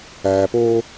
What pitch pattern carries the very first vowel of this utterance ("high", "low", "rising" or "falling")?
low